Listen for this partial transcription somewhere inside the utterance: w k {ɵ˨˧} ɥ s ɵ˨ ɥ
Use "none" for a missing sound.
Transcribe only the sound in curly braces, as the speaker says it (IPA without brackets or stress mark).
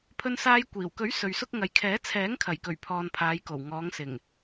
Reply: ɵ˨˥